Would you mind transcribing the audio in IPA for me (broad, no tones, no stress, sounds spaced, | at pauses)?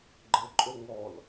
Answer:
ɡ͡ǃ ə ǃʼ o ŋ ɔ l